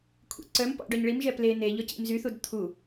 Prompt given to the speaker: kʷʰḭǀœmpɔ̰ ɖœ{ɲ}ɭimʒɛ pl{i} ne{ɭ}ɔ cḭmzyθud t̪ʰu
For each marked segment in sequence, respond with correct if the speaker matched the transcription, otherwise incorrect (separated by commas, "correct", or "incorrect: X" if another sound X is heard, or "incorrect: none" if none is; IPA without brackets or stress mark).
correct, incorrect: e, incorrect: ʎ